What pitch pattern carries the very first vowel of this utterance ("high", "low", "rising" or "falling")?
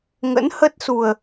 rising